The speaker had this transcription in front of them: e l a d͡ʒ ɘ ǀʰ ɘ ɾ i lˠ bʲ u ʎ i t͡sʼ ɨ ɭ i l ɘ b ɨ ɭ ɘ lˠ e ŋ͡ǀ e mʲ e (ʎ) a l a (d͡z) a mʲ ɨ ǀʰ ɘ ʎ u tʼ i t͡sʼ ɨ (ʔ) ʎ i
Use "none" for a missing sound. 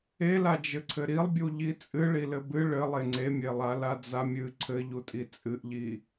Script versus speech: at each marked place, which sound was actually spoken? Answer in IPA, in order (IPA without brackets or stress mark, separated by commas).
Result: lˠ, d͡z, ʔ